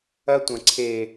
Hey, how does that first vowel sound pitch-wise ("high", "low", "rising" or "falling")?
high